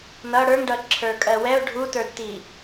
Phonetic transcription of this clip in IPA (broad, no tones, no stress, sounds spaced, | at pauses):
n ʌ ɽ ə˞ ŋ ɖ ʌ ǁʰ ə˞ kʼ ɜ w ɛ ʊ̯ ɖʱ u t ə˞ d t i